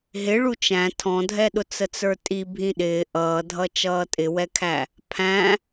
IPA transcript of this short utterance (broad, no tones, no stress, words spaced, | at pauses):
ɦɪ ɭut͡ʃæ̃ tʰɔ̃dʱɛɗʊ t͡sət͡sə˞tʼi bʱĩɗɪː ʔʌːdʱʌ t͡ʃʌːtʼɪwɛkʰæ | pʰæ̃